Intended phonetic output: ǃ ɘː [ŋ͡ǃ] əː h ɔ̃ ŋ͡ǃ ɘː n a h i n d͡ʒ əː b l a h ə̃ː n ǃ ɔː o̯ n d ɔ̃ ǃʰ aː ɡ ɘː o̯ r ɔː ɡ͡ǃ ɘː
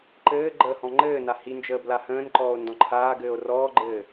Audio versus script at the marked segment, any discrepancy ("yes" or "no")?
yes